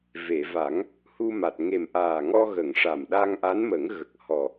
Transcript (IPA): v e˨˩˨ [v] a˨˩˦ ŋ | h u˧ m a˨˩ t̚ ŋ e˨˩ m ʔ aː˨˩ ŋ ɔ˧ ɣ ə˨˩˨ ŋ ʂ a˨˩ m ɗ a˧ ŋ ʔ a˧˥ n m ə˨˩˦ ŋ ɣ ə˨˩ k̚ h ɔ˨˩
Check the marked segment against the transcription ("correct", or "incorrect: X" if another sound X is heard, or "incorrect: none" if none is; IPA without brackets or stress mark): correct